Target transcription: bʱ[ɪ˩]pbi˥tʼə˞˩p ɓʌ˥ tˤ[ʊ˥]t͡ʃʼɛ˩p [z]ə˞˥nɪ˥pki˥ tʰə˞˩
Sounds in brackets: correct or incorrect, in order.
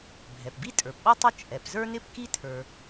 incorrect, correct, correct

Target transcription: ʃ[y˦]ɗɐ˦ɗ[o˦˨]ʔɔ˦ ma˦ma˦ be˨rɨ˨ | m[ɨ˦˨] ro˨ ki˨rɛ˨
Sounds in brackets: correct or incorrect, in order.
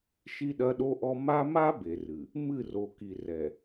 incorrect, incorrect, correct

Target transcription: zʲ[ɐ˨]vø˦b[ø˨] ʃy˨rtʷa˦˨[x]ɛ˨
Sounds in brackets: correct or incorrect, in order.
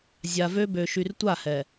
incorrect, correct, incorrect

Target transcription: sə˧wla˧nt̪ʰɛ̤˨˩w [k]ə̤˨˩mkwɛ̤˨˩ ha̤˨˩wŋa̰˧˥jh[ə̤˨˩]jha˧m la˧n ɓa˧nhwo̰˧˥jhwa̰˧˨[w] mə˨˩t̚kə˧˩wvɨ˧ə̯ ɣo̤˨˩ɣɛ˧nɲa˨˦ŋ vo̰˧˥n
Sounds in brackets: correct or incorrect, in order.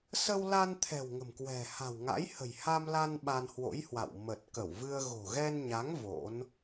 incorrect, correct, correct

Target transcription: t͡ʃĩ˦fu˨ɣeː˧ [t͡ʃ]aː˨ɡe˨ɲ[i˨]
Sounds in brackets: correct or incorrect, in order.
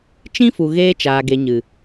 correct, incorrect

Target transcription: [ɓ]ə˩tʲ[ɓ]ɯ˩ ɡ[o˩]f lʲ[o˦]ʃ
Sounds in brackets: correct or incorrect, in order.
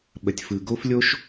correct, incorrect, incorrect, correct

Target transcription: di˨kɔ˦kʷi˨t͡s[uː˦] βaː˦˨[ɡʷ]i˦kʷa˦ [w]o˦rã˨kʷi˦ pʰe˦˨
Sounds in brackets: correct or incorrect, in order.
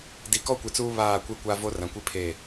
correct, incorrect, incorrect

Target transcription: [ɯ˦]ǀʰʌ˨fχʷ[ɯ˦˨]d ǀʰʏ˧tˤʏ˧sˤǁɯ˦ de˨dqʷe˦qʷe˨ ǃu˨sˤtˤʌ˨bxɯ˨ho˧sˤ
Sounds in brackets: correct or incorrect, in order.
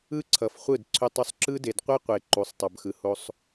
correct, correct

